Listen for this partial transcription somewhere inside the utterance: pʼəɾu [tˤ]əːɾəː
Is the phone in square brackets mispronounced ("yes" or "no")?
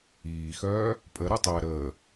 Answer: no